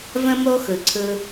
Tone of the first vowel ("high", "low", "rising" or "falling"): high